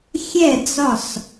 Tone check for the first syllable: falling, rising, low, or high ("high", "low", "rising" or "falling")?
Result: falling